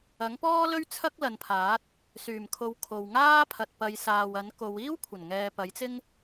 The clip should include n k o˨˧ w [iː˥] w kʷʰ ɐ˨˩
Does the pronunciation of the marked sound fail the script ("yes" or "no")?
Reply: no